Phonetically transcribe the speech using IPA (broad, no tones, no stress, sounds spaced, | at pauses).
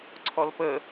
ǀʰ ɔ l p ə